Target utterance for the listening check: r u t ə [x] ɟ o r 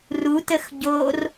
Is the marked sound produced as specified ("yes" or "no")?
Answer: yes